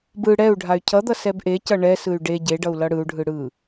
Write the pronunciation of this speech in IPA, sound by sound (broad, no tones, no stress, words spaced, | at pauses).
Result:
bɯ ɽɛu̯ɖʱay̯ cʰʌd̪ʌ sɛbʔecʌ ɳɛsɯy̯ ɖe ɟeɖʌu̯ lʌɽɯu̯ɖʱɯ ɽɯ